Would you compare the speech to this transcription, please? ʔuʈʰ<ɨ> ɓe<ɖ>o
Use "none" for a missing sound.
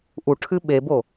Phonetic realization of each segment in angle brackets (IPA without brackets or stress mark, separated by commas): ɨ, b